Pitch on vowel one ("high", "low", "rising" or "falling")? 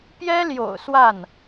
high